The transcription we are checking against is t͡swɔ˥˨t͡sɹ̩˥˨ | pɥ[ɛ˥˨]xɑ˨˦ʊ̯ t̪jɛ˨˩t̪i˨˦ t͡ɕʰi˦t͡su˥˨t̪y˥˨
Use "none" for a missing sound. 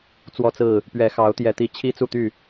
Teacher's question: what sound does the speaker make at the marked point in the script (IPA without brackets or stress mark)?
ɛ˨˦